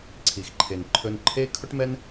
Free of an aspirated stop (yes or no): no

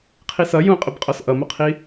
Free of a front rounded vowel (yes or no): yes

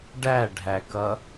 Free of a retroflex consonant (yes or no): no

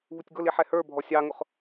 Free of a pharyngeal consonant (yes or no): no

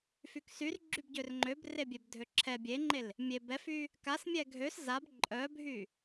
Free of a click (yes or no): no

